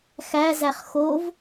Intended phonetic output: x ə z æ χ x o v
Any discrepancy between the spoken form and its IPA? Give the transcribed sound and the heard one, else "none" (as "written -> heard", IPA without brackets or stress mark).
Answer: ə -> æ